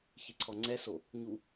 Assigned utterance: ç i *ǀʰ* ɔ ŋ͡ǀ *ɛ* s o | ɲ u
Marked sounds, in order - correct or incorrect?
correct, correct

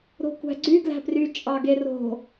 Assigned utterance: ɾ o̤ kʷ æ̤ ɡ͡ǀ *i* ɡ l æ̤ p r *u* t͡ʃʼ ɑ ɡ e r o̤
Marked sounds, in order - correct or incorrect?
incorrect: y, incorrect: y

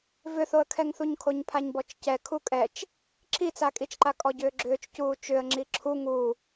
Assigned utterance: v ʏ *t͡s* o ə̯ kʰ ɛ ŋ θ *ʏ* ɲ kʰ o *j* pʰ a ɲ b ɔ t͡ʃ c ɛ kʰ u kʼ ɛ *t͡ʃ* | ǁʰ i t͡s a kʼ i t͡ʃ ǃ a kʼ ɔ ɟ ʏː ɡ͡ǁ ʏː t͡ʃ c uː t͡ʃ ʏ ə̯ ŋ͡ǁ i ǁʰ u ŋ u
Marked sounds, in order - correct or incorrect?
incorrect: θ, incorrect: u, incorrect: ɲ, correct

